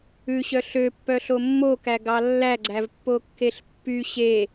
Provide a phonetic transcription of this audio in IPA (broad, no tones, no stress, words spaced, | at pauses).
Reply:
ʉɕœ ɬøpːœɬo mːokæɡɑ lːæɡ͡ǀævpːokːeɬ pːy ɕe